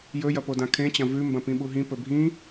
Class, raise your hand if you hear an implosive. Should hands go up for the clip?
yes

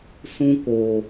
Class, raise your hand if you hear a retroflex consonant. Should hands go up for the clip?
no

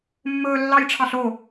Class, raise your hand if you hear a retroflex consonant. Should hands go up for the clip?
yes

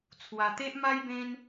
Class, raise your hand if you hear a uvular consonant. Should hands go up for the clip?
no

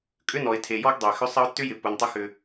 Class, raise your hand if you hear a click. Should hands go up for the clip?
no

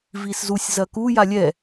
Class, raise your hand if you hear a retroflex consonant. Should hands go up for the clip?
no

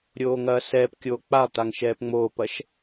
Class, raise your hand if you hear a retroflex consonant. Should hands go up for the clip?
no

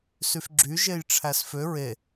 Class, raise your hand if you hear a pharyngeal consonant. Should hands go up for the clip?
no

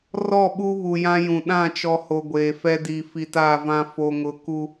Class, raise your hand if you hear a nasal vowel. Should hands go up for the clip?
yes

